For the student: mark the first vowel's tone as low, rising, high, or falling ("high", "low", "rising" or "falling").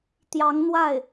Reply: rising